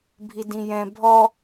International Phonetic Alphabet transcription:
bʱ i d ĩ j ɛ̃ bʱ ɔ

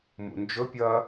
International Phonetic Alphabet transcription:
m ṵ n d͡ʒ ɵ pʲ ɐ

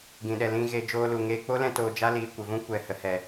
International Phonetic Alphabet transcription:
ɡ ĩ˨ ɗ ɛ˨ l ĩ˧ ɣ e˧ d͡ʒ oː˧ l u˨ ŋ eː˧ k͡p o˦ l ɛ̃˧ t oː˧ d͡ʒ a˦ l iː˨ kʷ ə˨ v ũ˦ kʷ ɛ˨ h ə˨ h ɛ˨

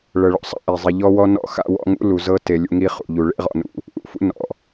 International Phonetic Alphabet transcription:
ɭ ɤ˨ ɭ ɔ̰˨ sˤ a̰˦ ʔ e˨ zˤ i˨ ʎ ɔ˦ w ɔ˦ n ɔ̰˦˨ x a̰˦ w ɔ̰˦ ŋ ṵ˦ l u˨ z ɤ˦ t e˨ lʲ ṵ˨ ŋ i˦ χ ṵ˨ ʎ u˨ ɭ ḛ˦ ʁ ɔ̰˨ n ṵ˨ | ʔ ṵ˨ f ṵ˦ n ɔ̰˨

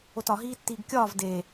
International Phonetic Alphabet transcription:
o t ɒ ɦ iː tː iː ɡ kʲ ɒː v d e

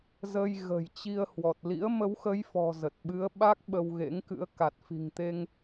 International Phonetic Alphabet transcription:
z ə˧ j ɣ ə̤˨˩ j t͡ɕ i˧ ə̯ h w ɔ˨˩ t̚ l ḭ˧˥ ə̯ m ə˨˦ w x ə˨˦ j f ɔ̤˨˩ z ə˨˩ t̚ ɓ ɨ˨˦ ə̯ ɓ a˦˥ k̚ ɓ ə˧ w ɣ ḛ˧˥ ŋ k ɨ̰˧˥ ə̯ k a˨˩ t̚ f i̤˨˩ ŋ t̪ e˧ ŋ

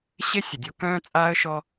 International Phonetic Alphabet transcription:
ɕ e˦ sʲ ə˨ dʲ o˦ k œ̃ː˦ t͡sʼ aː˦ ə̯ ʃ ɔ˦

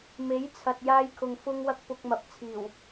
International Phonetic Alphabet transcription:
m e˨˥ j t͡sʰ ɐ˨ t̚ j aː˧ j kʰ ʊ˨ ŋ f ʊ˧ ŋ w ɐ˧ k̚ p ʊ˧ k̚ m ɐ˨ p̚ t͡sʰ iː˨˩ w

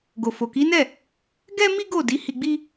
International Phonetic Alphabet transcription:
ɡ o˨ f o˨ k i˨˦ n ɛ˦˨ | ɡ ɛ˦ m i˦ ɡ o˦˨ d i˨˦ h i˧ ɡ͡b i˦

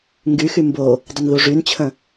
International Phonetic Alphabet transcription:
ŋ ɡ y x y m b o | dˤ ə n ð u ʐ y n t͡ɕʰ ə̃

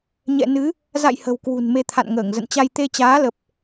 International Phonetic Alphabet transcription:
ɲ ɛ̰˧˨ n ɨ˨˦ | z a̰˧˨ j h ə̤˨˩ w k w ṳ˨˩ n m e˧ t̪ʰ a̰˧˨ n ŋ əː˧˩ ŋ z ə̰˧˨ n t͡ɕ a˧ j t̪ e˧ t͡ɕ aː˨˦ l ə˨˩ p̚

